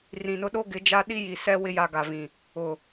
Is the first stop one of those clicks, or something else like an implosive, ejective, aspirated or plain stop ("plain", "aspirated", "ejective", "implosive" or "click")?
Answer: implosive